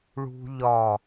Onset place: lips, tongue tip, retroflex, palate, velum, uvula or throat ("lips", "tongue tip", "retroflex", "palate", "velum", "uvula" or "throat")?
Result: retroflex